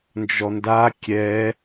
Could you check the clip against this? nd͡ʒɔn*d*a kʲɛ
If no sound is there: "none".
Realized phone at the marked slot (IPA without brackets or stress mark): d